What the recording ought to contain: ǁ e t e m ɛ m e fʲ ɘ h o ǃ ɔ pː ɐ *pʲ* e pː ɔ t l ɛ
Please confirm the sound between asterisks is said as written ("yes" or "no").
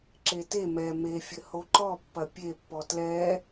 yes